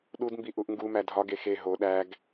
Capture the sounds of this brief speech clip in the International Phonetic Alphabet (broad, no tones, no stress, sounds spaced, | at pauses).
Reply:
ɗ u d m b i ʔ u ʔ ŋ ɡ u m æ dʱ ɒ ɡ e x e ɦ o ɗ æ ɡ